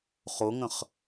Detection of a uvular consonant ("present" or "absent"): present